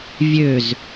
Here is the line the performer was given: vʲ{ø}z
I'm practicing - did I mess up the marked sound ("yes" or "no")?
no